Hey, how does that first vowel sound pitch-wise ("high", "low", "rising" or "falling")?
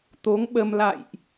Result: rising